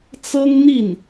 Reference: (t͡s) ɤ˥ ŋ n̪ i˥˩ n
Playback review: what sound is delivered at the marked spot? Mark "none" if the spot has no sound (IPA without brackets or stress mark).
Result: t͡s